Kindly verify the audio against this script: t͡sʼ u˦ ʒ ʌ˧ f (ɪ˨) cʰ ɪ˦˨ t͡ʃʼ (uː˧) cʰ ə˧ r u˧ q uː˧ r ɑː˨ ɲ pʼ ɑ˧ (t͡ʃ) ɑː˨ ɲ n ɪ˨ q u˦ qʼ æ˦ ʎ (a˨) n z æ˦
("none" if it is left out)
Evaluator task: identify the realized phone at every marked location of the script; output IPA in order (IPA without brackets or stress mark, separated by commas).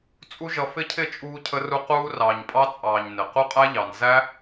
ɪ˦, uː˧, t͡sʼ, ɑ˨